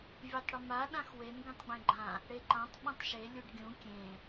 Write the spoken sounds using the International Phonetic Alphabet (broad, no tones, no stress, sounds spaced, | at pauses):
vʲ e tˤ ɽ ɪ m a ɗ ã x w e n ɡ ẽ tˤ ɡ͡b ẽ ɡ͡ǃ ã | ɽ e ǃ ã tˤ ɓ ũ tˤ ʃ e lʲ u ɖ ɡʲ ũ kʲ ẽ